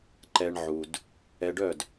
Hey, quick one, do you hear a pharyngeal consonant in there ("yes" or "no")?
yes